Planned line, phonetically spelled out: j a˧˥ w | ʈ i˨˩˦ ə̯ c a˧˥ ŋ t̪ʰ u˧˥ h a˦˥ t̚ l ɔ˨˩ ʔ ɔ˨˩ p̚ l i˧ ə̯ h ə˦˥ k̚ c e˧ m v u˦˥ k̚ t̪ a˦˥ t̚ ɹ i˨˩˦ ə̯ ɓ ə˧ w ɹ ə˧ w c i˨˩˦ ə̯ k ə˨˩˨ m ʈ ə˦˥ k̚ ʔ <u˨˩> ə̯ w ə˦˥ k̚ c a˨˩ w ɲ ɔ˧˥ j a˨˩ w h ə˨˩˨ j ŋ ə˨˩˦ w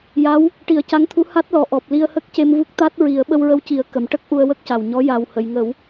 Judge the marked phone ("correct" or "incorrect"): incorrect